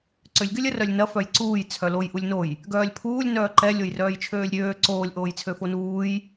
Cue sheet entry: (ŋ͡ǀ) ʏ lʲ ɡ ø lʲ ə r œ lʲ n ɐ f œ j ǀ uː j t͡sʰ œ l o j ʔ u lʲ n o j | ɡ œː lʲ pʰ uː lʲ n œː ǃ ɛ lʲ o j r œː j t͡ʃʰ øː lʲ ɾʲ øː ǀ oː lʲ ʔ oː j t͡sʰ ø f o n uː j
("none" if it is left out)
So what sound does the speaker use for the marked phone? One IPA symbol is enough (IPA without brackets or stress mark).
ǀ